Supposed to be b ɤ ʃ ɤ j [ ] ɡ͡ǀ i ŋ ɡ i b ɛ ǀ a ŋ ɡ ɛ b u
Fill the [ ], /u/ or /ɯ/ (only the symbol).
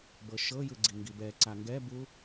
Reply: ɯ